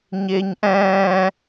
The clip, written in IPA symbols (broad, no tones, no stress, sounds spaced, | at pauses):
ɲ ɪː ɲ ʔ ɛ̃ː